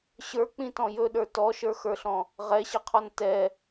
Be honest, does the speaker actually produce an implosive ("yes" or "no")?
yes